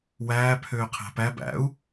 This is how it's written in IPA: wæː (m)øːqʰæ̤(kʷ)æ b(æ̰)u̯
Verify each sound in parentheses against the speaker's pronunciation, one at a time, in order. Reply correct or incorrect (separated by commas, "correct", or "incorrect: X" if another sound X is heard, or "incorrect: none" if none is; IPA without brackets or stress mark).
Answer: incorrect: pʰ, incorrect: p, correct